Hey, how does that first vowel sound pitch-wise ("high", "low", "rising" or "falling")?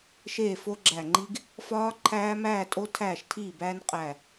falling